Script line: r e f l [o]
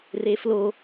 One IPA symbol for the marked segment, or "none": o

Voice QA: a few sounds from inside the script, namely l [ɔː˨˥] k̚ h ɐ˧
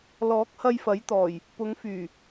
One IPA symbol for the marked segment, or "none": ɔː˨˥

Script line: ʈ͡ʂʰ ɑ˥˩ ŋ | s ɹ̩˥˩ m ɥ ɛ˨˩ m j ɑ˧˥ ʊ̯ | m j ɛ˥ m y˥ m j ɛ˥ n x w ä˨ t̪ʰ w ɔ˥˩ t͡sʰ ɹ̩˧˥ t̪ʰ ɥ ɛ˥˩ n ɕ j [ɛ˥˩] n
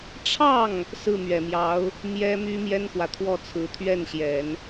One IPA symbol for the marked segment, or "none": ɛ˨˩˦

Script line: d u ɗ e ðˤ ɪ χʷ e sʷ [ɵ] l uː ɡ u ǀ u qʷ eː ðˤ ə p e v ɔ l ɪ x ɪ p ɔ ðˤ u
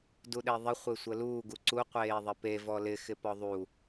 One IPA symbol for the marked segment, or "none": ə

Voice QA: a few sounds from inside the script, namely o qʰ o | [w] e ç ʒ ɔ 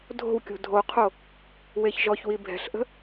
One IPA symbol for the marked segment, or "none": w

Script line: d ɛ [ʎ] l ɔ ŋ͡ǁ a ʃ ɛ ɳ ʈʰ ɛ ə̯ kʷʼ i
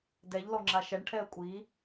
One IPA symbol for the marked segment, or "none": ʎ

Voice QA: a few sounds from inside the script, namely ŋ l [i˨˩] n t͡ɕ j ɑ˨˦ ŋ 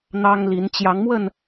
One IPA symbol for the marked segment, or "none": i˨˦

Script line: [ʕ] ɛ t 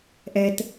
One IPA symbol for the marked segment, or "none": ʔ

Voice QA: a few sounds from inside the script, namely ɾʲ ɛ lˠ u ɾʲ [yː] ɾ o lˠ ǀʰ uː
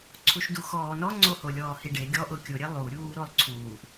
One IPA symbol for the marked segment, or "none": uː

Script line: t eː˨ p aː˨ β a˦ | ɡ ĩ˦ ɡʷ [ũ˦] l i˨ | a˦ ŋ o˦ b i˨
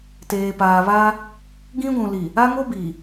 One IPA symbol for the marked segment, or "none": ũ˨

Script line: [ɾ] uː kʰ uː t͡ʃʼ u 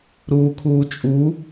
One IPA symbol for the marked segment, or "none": ɾ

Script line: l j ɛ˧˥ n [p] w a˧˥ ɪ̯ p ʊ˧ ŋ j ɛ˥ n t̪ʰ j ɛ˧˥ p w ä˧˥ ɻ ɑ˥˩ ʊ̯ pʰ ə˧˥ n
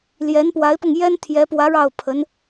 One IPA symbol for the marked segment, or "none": p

